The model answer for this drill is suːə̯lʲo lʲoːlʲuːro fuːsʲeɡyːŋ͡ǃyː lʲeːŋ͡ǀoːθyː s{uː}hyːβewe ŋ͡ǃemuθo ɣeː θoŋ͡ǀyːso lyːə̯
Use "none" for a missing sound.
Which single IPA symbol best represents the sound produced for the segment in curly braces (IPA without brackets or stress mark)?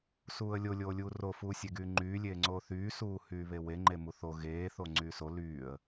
uː